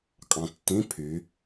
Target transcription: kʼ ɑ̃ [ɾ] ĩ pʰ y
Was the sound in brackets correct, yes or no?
no